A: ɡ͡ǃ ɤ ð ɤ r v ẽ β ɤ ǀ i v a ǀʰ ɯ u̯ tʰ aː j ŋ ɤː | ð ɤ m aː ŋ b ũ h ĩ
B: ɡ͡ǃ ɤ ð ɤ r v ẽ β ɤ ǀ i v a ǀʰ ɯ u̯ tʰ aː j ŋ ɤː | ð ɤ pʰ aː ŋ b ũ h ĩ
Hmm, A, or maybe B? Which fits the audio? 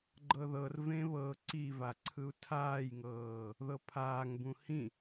B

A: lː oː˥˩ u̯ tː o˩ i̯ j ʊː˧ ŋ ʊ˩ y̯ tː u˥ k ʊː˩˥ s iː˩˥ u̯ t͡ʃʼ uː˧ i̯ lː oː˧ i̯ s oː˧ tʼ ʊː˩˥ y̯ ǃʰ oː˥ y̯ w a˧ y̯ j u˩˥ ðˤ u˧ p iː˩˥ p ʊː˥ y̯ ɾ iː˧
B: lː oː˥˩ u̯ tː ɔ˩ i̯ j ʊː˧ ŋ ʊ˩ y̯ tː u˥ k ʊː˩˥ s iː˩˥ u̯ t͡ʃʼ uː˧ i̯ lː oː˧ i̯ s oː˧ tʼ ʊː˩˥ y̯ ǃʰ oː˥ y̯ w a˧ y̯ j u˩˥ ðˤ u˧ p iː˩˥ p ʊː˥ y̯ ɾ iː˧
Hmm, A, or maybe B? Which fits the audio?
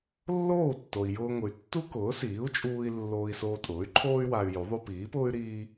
A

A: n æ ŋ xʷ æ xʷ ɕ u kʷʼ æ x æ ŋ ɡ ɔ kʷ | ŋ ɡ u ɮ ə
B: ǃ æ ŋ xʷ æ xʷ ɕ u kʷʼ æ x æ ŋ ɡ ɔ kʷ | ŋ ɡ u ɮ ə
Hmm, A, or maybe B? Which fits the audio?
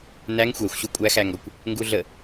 A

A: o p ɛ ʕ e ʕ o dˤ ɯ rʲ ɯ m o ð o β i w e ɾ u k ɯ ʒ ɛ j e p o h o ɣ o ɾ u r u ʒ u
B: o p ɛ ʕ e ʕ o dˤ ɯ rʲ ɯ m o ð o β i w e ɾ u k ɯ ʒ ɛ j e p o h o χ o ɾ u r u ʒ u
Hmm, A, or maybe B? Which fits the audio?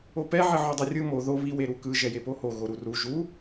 A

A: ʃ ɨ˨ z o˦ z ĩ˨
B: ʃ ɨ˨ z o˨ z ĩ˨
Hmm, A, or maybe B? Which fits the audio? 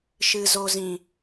B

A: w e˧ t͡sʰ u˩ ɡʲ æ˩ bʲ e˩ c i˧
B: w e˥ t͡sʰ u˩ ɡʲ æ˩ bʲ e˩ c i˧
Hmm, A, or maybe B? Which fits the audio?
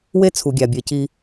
B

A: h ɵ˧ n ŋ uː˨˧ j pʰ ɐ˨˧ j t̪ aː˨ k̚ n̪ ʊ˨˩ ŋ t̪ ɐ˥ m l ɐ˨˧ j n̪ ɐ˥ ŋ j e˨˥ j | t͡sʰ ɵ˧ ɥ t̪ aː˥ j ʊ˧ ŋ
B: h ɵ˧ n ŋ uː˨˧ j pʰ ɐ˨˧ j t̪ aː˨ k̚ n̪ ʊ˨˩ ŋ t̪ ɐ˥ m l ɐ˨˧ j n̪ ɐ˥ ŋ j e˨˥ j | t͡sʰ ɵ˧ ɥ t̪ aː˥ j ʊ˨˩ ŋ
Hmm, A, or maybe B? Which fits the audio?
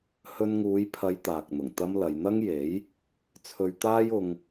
A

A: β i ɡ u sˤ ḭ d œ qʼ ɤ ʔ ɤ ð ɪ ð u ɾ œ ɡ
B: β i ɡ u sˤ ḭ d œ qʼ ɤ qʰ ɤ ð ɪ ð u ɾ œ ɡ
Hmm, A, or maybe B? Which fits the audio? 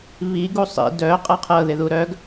B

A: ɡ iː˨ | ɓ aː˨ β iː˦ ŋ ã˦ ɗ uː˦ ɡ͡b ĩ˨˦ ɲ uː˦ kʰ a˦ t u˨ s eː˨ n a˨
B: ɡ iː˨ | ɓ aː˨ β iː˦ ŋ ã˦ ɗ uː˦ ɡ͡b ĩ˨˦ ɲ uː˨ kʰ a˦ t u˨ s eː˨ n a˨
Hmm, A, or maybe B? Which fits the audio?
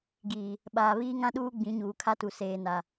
B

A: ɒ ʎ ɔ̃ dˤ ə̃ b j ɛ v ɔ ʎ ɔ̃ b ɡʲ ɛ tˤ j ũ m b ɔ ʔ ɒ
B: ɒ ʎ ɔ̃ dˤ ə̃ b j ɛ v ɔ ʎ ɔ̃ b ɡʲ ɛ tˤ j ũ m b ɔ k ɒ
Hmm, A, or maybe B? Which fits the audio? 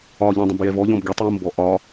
A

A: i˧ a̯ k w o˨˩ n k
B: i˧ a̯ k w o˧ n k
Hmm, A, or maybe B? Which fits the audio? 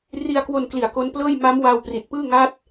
B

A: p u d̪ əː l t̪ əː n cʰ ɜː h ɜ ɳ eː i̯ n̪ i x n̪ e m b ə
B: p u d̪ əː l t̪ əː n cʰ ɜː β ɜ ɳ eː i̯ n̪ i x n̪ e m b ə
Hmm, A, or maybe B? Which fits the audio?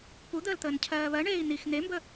B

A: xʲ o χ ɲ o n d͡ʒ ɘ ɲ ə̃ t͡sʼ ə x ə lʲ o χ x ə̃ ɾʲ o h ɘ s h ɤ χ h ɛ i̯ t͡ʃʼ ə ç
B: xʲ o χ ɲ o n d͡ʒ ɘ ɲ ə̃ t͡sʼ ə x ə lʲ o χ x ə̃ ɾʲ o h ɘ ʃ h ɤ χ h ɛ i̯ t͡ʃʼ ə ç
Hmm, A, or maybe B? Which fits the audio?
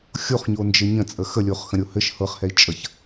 B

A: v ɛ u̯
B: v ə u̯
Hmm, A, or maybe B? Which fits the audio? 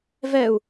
A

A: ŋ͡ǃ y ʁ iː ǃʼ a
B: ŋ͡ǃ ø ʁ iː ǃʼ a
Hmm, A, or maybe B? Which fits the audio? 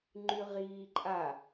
A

